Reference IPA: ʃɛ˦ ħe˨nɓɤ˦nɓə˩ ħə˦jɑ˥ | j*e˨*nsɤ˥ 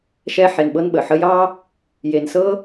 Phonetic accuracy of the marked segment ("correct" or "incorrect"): correct